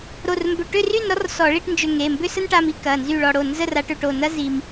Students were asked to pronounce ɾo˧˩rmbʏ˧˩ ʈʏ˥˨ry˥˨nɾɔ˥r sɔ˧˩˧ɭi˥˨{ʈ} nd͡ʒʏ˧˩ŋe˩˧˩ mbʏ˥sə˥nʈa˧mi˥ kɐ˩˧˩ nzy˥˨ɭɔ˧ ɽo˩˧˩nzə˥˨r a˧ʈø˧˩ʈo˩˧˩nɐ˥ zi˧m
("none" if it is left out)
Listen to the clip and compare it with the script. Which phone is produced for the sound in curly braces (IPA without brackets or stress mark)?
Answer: ʈ